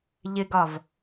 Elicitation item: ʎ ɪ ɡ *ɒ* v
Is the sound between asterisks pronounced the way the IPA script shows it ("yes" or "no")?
yes